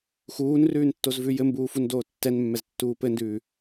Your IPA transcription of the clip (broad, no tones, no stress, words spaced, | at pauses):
xuːnrʉːntːozvʉ jɘmbuːfundoː tːɛnmːɛztːuː pɘndʉː